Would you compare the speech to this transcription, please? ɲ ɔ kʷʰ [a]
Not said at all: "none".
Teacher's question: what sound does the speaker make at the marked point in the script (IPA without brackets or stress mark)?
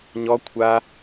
a